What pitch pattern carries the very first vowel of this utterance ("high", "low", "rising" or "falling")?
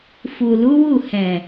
low